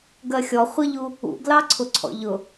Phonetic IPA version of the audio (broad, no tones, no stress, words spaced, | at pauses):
ɡɜxʲɔ χʷəʎu | ṵɡlɑǀʰʊ ǀʰɔ̰ʎʊ